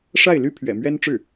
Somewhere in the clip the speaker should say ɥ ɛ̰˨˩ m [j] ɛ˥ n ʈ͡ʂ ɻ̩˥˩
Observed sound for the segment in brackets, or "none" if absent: ɥ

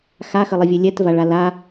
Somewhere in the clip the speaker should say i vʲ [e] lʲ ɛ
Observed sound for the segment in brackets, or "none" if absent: e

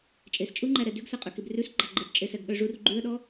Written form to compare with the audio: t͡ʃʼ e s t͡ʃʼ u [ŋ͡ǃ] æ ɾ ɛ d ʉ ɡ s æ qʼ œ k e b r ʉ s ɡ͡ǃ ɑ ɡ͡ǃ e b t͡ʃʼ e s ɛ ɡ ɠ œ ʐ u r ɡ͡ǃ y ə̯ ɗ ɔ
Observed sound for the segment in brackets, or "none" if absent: ŋ͡ǃ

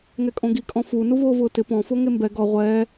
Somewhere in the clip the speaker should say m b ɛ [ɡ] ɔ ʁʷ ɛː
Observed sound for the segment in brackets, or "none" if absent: ɡ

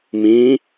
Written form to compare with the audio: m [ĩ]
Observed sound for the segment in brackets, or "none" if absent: ĩ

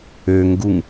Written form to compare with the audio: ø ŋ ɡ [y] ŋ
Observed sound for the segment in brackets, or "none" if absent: u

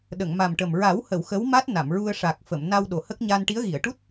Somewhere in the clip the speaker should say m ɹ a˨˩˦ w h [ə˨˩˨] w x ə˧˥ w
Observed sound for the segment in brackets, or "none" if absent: ə˨˩˨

